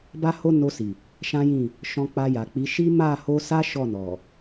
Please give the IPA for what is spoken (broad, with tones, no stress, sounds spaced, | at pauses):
b a˦ h o˦ n o˧ s i˨ | ʃ ã˦ j ĩ˦˨ | ʃ ɔ̃˧ k͡p a˧ j a˨ k͡p i˨˦ ʃ i˦ m a˦˨ h o˧ s a˦ ʃ ɔ˦˨ n ɔ˨